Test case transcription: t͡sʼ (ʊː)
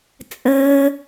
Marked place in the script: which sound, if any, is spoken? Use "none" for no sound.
əː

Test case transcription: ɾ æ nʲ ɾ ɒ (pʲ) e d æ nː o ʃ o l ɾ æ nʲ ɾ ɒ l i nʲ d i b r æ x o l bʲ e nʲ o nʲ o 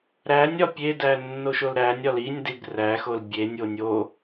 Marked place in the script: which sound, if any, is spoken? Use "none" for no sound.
pʲ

